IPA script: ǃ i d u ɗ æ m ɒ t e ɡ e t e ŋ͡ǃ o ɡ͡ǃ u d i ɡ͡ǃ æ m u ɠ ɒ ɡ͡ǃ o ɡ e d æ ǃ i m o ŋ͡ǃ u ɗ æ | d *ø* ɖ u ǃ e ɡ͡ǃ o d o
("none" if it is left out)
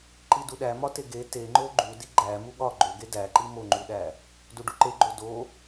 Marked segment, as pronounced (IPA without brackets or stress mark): u